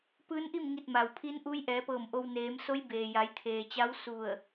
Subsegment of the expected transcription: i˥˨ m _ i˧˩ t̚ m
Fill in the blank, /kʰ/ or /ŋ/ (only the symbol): ŋ